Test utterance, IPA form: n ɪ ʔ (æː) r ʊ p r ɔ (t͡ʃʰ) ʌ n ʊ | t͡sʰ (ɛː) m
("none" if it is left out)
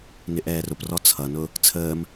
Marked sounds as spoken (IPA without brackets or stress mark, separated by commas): ɛː, t͡sʰ, əː